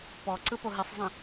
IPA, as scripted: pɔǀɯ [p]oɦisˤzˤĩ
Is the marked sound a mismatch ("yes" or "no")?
no